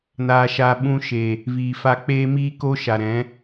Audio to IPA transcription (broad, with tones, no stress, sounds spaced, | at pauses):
n aː˨ ʃ aː˨ ɓ ũ˧ ʃ e˨ | v iː˨ f a˧ k͡p eː˦ m iː˦ k o˦ ʃ a˨ ɾ ɛ̃˨˦